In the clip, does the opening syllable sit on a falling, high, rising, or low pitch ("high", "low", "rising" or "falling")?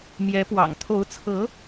rising